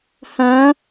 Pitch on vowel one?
rising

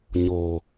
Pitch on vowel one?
low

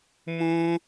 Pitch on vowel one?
high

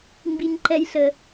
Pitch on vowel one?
high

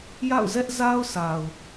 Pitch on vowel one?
falling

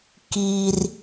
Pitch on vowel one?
high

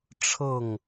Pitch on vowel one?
falling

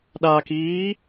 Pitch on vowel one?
low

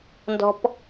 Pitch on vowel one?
high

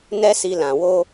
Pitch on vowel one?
high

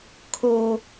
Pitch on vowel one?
low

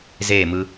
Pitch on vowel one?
falling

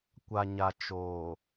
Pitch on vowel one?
low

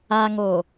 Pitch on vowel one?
low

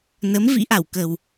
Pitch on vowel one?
rising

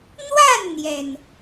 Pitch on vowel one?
falling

